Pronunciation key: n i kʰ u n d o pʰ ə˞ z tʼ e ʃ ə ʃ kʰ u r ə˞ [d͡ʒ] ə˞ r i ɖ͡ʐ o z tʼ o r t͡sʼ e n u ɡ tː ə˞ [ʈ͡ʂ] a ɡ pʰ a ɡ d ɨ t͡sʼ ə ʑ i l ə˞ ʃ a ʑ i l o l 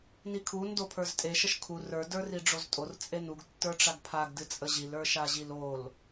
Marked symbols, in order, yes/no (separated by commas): no, yes